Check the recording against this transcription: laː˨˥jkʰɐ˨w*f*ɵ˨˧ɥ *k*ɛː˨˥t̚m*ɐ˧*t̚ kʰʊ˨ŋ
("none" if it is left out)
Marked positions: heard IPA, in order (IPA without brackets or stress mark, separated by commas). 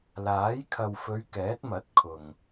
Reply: f, k, ɐ˨˥